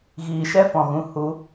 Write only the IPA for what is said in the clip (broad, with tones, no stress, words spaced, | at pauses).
ɣiː˨ʃɛ˦fɔ̃˨ɣũ˨ hu˨˦